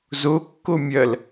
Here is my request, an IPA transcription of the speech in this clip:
zokːo mʲɐl

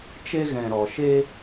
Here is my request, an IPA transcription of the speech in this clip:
t͡ʃe˦ ɣɛ̃˨ɾɔ˨ʃe˦

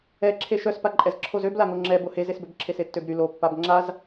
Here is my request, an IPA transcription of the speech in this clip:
ɛǁʰe ʃœspaǃʼɛz ǁʰozøblaŋo ŋ͡ǁɛ bohezesbøb ǁʰesetːøbɾy lo pːabŋ͡ǁaz

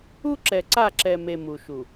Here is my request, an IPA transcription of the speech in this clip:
u˦ǁɛ˨ǀa˦˨ǁɛ˨ me˨ mu˨ʃu˨

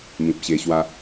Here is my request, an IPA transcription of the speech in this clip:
mĩ˨p̚ɕe˧ɕwa˦

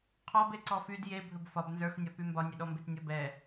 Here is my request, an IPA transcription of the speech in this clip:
qʰɔbe ǀɔfyd je bʱɵbfɒb nzə˞xnʲɒpy mbɒnʲeɗɔmbet nʲɔbɛ

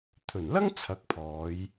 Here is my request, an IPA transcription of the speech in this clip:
t̪ʰɵ˨˩nlɐ˥ŋ t͡sʰɐ˨˥k̚pʰɔː˨˧j

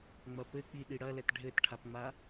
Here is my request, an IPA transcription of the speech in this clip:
ŋ͡mɐpɘk͡pi ɗiɽɐlɛt ɖʱɘtʈʰapŋ͡ma

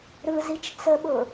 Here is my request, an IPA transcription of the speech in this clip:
ɾɯzit͡ʃ t͡səɓʊ

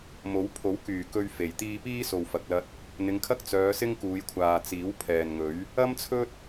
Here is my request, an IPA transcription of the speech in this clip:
mo˨˥w pʰo˨˥w kyː˨˩kɵ˧ɥ fe˨˩j t̪iː˧piː˥so˨w fɐ˨k̚lɐ˧t̚ | n̪ɪ˨˧ŋkʰɐ˥k̚ t͡sœː˨˧sɪ˥ŋkuː˨˧jkʷʰaː˨ t͡siː˨˥wpʰɛː˨nŋɵ˨˥ɥ | ɐ˥mt͡sʰɵ˥t̚

